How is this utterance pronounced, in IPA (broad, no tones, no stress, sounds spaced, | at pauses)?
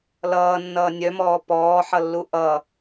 l ʌː nː ʌː nʲ œ m ɔː p ɔː ħ ʌ lː u ʔ ʌ